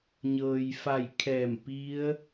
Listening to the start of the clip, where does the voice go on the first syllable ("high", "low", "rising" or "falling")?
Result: low